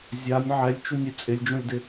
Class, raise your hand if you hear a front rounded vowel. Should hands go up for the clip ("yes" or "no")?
no